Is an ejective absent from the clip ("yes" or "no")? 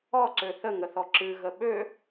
yes